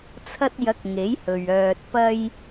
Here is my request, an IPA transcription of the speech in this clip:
t͡sʰ ɐ˧ t̚ j ɐ˨˥ k̚ ŋ e˨˥ j h ɵ˨ ɥ œː˧ t̚ p ɐ˥ j

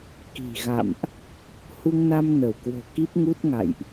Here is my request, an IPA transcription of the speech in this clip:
k i̤˨˩ ɣ a̰˧˨ m ʔ | h u˧ ŋ n a˧ m n ə˧˩ w k w o̤˨˩ k i˦˥ p̚ ŋ u˦˥ t̚ ŋ a̰˧˨ j ʔ

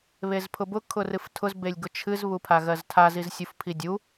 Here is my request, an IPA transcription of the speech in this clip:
β e z pʰ ʊ b ʊ kʰ ʊ r ɨ f tʰ ʊ z b e lʲ ɡ ʊ t͡ʃʰ ɨ z β u pʰ a ɣ ɜ z tʰ a z i z sʲ u f pʰ i dʲ u

